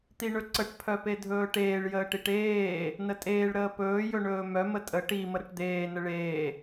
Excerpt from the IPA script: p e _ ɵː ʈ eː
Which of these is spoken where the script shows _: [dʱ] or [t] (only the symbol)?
dʱ